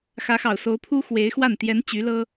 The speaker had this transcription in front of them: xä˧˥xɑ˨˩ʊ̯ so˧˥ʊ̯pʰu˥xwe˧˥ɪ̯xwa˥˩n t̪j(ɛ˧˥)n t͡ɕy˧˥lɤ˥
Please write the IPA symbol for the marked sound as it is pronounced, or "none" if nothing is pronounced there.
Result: ɛ˧˥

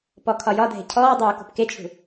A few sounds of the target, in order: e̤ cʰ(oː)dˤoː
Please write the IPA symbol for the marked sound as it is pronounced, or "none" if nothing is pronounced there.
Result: ɔː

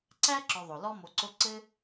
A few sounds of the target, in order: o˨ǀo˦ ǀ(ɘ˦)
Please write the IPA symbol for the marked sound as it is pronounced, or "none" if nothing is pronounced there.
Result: ɘ˦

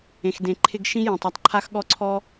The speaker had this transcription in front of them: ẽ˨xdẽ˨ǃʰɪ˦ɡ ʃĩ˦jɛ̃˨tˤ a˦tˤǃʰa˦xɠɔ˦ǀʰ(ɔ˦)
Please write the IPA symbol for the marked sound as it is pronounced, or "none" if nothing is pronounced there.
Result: ɔ˦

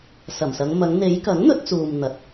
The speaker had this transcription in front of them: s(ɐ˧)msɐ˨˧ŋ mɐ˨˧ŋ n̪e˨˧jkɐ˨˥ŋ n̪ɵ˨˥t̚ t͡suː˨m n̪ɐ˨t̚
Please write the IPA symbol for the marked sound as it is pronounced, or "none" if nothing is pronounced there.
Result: ɐ˨˩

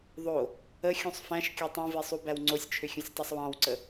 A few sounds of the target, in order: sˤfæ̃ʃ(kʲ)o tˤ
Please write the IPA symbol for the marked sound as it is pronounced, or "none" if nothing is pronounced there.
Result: kʲ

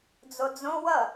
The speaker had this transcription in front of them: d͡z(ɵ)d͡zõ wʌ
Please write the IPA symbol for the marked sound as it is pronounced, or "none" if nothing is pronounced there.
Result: o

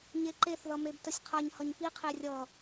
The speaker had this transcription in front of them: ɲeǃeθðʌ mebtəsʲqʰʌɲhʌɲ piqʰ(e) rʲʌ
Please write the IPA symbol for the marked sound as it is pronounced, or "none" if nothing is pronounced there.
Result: e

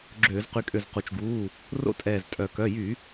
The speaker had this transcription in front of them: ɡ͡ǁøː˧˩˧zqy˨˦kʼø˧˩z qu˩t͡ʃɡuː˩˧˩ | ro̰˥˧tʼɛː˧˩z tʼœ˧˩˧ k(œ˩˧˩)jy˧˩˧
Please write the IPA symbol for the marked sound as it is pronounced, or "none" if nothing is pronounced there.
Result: œ˩˧˩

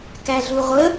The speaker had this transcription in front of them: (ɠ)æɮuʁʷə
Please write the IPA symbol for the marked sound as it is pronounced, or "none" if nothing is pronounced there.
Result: k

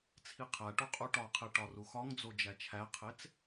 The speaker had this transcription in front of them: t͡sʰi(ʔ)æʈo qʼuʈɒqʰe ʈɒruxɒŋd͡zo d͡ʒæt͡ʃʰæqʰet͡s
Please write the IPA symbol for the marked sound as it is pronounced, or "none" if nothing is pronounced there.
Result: qʰ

